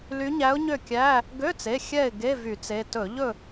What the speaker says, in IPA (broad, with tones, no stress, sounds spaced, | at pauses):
l y˧˥ ɲ æ˧˥ ʊ̯ ɲ ø˥˨ kʲ æ˧˥˧ | ɡ ø˧˥˧ t͡s e˩˧˩ xʲ ɛ˥˨ ɪ̯ ɡ e˧˥˧ v y˧˩˧ t͡s e˩˧˩ t ɵ˧˩˧ ʎ ɵ˥˨